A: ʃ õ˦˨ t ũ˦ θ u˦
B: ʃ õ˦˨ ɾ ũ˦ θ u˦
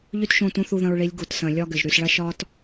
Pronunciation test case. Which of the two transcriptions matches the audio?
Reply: A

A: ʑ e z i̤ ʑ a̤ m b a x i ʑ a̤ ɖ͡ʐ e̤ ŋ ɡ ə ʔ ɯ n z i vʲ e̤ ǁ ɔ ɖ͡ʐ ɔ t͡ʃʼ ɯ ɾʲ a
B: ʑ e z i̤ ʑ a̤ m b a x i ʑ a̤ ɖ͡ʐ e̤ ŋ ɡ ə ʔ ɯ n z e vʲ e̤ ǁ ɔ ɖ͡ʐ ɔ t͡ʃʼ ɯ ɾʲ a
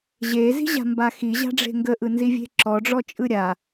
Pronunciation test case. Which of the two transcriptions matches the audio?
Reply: A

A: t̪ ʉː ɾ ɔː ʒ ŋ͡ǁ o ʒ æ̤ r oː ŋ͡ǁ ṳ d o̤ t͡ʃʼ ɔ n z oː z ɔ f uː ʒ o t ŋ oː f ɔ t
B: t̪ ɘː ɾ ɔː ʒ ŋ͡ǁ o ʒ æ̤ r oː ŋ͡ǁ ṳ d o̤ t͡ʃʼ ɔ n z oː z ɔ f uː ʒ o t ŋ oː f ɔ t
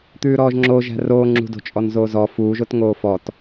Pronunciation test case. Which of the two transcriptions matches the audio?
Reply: A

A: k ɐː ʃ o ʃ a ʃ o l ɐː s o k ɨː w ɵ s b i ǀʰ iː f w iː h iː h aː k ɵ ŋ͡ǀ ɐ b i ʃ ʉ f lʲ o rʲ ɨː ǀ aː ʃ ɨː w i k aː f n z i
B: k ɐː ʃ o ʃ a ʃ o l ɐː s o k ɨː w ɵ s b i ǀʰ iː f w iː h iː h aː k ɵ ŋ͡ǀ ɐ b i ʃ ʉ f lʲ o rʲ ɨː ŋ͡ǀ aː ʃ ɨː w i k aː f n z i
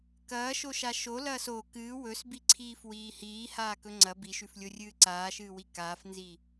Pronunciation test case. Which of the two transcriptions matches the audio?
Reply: A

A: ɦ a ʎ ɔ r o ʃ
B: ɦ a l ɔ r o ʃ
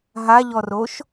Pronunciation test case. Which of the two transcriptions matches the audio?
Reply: A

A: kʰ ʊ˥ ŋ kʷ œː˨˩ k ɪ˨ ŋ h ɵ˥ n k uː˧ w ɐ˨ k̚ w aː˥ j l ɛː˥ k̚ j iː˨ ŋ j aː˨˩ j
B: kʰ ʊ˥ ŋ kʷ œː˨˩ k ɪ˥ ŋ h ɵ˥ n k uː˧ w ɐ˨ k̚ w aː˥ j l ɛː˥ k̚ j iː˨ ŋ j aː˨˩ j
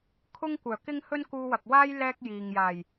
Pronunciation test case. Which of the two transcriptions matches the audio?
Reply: B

